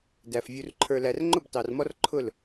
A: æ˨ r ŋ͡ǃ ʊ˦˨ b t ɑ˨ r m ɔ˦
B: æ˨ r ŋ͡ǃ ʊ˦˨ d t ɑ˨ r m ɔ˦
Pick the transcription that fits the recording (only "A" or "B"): A